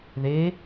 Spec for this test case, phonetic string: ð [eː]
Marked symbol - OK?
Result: yes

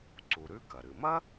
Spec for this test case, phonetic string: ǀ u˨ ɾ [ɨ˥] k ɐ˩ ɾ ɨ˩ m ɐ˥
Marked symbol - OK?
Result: no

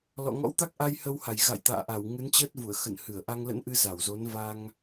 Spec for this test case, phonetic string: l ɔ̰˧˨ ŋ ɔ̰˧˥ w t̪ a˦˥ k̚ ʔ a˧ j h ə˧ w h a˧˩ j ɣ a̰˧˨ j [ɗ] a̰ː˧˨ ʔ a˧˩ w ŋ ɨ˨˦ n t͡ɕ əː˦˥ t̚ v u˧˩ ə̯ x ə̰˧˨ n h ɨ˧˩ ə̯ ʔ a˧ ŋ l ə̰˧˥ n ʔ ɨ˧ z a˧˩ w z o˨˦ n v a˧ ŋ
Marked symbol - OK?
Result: no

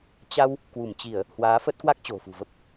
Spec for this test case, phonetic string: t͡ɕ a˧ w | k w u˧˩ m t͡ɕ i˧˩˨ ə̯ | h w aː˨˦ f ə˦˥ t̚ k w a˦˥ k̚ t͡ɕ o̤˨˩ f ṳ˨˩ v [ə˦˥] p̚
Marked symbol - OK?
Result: yes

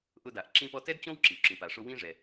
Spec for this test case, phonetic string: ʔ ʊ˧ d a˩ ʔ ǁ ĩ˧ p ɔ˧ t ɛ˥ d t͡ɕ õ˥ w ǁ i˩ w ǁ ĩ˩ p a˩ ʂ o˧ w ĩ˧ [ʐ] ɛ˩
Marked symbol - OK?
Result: yes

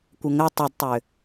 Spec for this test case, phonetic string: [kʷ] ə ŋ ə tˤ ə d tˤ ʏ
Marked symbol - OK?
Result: yes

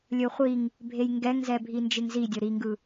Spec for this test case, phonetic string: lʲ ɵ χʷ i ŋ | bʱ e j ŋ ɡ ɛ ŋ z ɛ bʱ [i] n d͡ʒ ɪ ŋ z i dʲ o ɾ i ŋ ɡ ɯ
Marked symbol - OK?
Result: yes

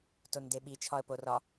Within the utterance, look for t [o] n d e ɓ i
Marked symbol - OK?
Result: yes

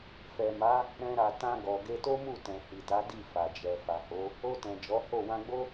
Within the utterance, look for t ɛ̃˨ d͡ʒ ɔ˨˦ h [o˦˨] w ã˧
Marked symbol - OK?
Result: yes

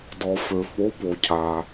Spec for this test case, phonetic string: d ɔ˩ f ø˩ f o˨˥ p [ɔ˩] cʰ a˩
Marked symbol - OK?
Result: no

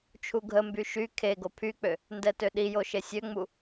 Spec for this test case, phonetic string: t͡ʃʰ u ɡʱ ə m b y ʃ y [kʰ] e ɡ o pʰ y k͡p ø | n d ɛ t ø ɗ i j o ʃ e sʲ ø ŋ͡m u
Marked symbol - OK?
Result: yes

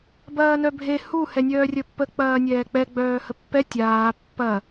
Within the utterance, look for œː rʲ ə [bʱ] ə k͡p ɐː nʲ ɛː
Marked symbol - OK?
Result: no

